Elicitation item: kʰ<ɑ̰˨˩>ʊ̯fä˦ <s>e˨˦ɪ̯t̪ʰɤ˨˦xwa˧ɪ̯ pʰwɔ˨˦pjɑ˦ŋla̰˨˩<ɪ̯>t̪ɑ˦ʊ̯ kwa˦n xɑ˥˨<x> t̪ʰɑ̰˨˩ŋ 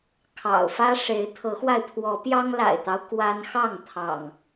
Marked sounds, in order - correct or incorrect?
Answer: correct, incorrect: ʂ, correct, incorrect: ŋ

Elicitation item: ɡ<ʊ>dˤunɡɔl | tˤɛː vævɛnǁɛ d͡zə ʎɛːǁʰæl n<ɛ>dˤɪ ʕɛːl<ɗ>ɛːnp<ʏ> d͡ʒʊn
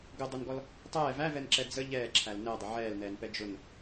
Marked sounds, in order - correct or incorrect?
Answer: correct, correct, incorrect: n, incorrect: ɛ

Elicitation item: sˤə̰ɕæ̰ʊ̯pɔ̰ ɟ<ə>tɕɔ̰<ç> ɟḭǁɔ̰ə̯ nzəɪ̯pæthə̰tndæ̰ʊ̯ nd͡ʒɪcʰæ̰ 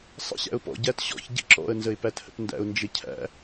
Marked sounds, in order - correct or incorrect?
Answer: incorrect: æ, correct

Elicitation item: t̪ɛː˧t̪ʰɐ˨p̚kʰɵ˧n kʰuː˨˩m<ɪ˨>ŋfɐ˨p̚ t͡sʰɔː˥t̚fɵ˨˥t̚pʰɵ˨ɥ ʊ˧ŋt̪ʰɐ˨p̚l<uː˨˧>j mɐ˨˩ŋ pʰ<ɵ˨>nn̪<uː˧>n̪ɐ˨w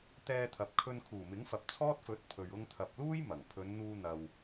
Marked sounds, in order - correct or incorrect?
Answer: incorrect: ɪ˨˥, incorrect: uː˥, incorrect: ɵ˨˧, correct

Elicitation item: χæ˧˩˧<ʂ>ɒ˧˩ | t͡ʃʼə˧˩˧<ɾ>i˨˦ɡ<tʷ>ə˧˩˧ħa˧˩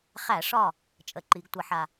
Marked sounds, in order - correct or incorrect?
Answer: correct, incorrect: ǃ, correct

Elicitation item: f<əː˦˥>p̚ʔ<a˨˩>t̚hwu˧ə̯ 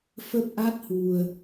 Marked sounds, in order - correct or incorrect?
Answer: incorrect: ə˦˥, incorrect: a˦˥

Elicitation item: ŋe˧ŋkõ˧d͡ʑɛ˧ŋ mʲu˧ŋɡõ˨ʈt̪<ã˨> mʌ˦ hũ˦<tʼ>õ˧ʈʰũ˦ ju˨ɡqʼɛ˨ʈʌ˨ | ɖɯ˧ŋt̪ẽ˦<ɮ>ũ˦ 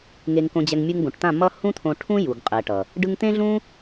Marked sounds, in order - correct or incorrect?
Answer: incorrect: ã˦˨, incorrect: t̪ʰ, correct

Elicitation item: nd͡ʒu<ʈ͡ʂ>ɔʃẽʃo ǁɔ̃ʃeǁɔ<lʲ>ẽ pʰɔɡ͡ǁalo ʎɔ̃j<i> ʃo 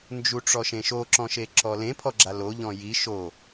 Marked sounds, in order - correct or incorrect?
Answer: correct, incorrect: l, correct

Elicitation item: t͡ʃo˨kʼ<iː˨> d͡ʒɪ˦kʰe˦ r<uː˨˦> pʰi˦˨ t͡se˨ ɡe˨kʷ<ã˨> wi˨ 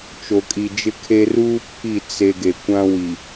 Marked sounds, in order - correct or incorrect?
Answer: incorrect: i˨, incorrect: uː˦, incorrect: ã˦

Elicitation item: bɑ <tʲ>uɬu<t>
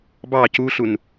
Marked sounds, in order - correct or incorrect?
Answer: incorrect: c, incorrect: n

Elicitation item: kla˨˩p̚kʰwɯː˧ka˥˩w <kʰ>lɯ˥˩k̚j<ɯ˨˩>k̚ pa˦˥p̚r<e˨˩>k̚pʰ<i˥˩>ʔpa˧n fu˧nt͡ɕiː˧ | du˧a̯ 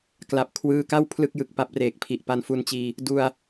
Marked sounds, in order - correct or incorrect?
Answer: incorrect: pʰ, correct, incorrect: eː˨˩, incorrect: i˨˩

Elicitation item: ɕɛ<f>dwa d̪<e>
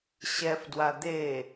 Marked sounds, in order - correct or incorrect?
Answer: correct, correct

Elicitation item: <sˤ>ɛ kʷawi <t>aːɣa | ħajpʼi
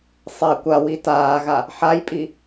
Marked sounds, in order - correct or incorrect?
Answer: correct, correct

